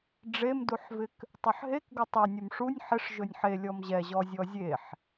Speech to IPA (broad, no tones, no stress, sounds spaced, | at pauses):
ɖ͡ʐ e m d u ħ v ɪ k | tˤ ɵ ħ ɦ e k ɡ ɵ tˤ e nʲ ɵ m ʂ u nʲ ħ ɪ ʂ ʒ ɵ nʲ ħ e lʲ ɔ m ʑ ɛ ʑ ɔ zʲ ɔ zʲ e ħ